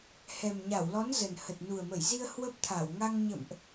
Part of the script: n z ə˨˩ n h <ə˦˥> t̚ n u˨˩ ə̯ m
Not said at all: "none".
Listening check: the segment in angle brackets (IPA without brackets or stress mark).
ə˨˩